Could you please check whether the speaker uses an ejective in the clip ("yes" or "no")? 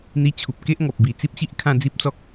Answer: no